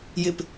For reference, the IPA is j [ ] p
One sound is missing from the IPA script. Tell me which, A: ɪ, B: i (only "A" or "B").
A